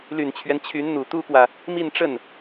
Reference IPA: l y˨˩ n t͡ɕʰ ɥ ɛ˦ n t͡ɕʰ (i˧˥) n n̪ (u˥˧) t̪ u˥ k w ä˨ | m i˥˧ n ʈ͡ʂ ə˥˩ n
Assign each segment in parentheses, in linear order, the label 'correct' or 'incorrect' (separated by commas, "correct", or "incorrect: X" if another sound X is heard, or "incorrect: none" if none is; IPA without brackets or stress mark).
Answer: incorrect: y˧˥, incorrect: u˨˩